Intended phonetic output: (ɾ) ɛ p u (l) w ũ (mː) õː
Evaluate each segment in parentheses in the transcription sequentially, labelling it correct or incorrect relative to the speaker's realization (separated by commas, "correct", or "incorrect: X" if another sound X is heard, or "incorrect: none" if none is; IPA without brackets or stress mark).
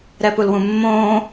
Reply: correct, correct, correct